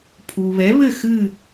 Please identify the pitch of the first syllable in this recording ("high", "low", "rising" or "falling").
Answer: low